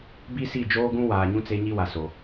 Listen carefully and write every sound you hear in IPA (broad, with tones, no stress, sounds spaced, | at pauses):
b i˦ s i˦˨ d͡ʒ oː˦ ɡ ũ˦ w aː˨ ɲ ũ˦ t͡s e˦ ɲ i˦ w a˨ s o˨